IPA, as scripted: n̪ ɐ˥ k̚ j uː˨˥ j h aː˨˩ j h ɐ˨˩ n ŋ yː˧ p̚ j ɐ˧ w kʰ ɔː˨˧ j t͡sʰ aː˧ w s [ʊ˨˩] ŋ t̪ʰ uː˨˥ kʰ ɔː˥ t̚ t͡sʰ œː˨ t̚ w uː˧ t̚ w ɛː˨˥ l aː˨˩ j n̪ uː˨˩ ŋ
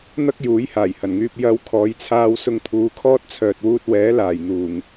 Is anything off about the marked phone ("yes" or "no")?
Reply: yes